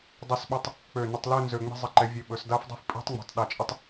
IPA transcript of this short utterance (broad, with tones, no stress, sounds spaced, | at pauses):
dˤ i˧˩ s ɓ ɵ˧ tˤ | k͡p ø˧˩ n ə˧ tˤ l ø˥˧ n z ø˧ ŋ͡m i̤˧ zˤ ə˧˩ ǃ ɛ˩˧ vʲ ø˧˩ ɓ ɵ˩˧ s d a˥ f dˤ i̤˥ f pʼ i̤˥ tˤ ŋ͡m i̤˩˧ tˤ ɗ a˧ t͡ʃʼ ə˥ tˤ